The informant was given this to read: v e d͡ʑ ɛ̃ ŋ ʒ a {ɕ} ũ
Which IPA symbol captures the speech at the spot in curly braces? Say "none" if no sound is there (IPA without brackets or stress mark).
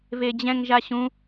ɕ